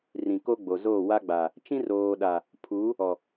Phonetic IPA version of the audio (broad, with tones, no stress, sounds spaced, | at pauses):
r ĩ˨ k o˦ ɡ͡b o˨ z oː˦˨ w a˦ ɡ͡b a˨ | t͡ʃ ĩ˦ r oː˨ ɗ a˨ | pʰ u˨˦ | ɔ˨